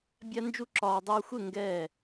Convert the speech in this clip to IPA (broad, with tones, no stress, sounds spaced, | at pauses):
bʲ a˦ n d͡ʒ u˦ ǁ ɒː˧ dˤ oː˧ xʷ e˦˨ ŋ ɡ ɛː˦˨